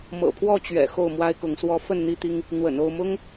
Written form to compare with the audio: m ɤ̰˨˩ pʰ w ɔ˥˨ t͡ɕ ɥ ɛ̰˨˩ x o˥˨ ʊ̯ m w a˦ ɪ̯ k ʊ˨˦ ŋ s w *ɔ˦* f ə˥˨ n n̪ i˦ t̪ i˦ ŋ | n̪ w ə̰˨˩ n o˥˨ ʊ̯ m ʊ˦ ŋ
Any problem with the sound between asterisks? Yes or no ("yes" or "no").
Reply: no